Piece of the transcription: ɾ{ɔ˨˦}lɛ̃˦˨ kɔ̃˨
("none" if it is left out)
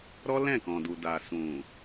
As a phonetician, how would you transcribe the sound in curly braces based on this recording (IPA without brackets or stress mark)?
ɔ˦